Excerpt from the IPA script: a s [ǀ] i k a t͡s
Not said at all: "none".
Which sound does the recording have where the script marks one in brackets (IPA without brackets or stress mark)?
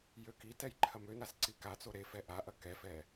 ǀ